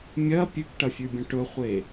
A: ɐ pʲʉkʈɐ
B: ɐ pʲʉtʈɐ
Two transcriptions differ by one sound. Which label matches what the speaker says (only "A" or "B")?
A